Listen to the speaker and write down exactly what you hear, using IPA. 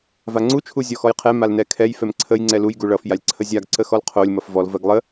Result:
v a ŋ͡ǀ u t͡ʃʰ u zʲ ɔ x ɔ j qʰ ɛ m a l n ɛ kʰ ɛ j f ɛ m ǀʰ ə j ŋ͡ǀ ɛ l u j ɡ u ɭ ʌ f j a lʲ ǀʰ ə zʲ a ɡ ǀ ə x ɔ l qʰ o lʲ m ʌ f v ɔ l v ɜ ɡ lˠ ə

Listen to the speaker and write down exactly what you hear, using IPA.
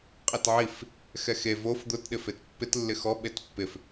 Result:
qʼ i t ʕ i f | x ɛ x e v o f d̪ ʊ t ɗ ɪ f e t pː ɪ t lː ɪ x ɔ ɓ e t pː ɪ f

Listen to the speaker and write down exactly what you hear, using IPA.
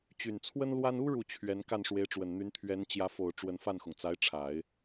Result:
t͡ɕ y˨˩ n t͡sʰ w ə˥ n l w a˥ n u˥ ɻ u˥˩ t͡ɕʰ ɥ ɛ˧˥ n k a˥˩ n ʂ w e˧˥ ɪ̯ ʈ͡ʂ w ə˨˩ n n̪ y˧˥ n t̪ʰ ɥ ɛ˧˥ n t͡ɕ j ä˧˥ f o˨˩ ʊ̯ ʈ͡ʂ w ə˧˥ n f a˥˩ n x ʊ˩ ŋ t͡s a˧˥ ɪ̯ ʈ͡ʂʰ a˨˩˦ ɪ̯

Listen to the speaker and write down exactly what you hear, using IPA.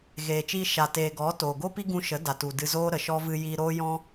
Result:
ɣ eː˨ t͡ʃ iː˧ ʃ a˨ t eː˨ ɡ ɔ˨˦ t oː˨ ɡ o˦ p i˦ ɡ ũ˧ ʃ ə˨˦ d a˨ t u˨ d ɨ˧ z oː˦ ɾ ə˨ ʃ ɔ˦ v ɨ˧ j iː˧ ɾ oː˦ j ɔ̃˦

